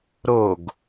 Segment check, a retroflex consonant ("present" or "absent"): absent